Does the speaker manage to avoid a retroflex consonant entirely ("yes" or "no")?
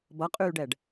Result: no